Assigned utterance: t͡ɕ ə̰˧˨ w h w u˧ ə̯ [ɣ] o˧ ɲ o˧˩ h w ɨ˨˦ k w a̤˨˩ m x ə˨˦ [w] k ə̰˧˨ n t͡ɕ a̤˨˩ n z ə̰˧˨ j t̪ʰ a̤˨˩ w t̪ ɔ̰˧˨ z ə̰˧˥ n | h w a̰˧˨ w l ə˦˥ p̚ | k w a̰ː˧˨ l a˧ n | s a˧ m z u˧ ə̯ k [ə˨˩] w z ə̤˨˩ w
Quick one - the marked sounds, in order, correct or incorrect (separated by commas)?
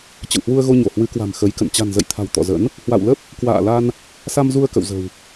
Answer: correct, incorrect, incorrect